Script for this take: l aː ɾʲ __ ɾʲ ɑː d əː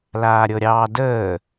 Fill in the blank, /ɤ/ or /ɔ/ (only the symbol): ɤ